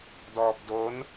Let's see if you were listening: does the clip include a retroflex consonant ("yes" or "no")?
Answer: no